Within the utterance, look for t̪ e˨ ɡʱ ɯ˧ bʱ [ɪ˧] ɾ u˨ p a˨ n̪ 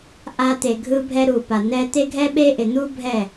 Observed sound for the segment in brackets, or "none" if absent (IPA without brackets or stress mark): ɛ˧